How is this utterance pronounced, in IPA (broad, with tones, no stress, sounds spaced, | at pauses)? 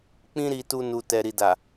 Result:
k͡p ĩ˦ ɾ i˧ t u˧ n u˨ t ɛ˨ ɾ i˨ d a˨